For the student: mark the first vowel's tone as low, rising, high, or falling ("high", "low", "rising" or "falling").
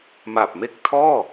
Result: low